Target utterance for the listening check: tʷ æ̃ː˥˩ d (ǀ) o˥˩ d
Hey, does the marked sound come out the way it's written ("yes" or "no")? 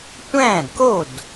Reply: no